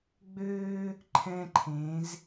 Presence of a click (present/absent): present